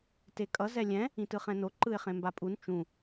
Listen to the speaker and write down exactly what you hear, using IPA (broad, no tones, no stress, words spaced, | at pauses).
tekʼʌ zɛlʲɛ̃ | ĩtɯχɛ̃no ǃɯɪ̯χẽmbapʼun t͡ʃũ